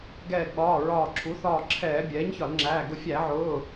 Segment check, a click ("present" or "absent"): present